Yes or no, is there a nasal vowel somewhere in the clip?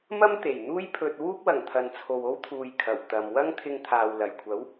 no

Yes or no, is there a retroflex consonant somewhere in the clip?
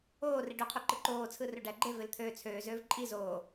yes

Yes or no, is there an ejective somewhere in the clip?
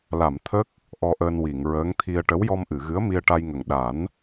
no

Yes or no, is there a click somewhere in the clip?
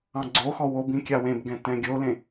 yes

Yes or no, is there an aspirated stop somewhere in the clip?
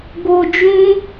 no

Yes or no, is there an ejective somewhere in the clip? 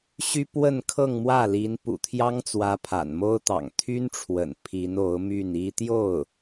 no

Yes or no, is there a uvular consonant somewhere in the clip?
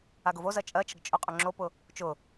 yes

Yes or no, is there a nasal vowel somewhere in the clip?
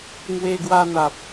no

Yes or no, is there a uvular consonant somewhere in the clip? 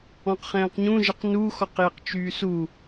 yes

